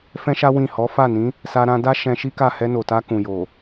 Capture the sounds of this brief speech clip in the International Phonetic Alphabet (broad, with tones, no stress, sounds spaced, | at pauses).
f ɛ̃˦ ʃ a˦ w ĩ˦˨ h ɔ˨˦ f a˦˨ n ĩ˨˦ | s a˧ ɾ ã˧ d a˦ ʃ ɛ̃˧ ʃ i˦ k a˦˨ h ɛ˧ n o˨ t a˧ k ũ˨ j o˨